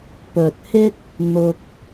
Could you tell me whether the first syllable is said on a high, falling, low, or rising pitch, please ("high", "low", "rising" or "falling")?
low